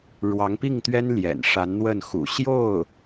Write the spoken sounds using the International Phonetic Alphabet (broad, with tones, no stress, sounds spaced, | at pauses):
ɻ w ɑ˧˥ ŋ p i˥˩ ŋ t̪ ɥ ɛ˥ n l j ɛ̰˨˩ n ʂ a˧˥ n n̪ w ə˥˩ n x ṵ˨˩ ɕ j o˥˩ ʊ̯